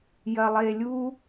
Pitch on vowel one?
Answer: low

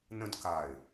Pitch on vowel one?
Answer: high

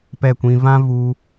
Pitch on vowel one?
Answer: falling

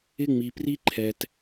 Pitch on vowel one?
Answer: high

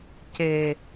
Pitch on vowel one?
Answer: low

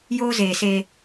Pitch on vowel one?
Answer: high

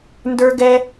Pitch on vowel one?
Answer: high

